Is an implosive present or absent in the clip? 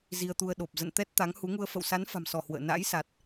present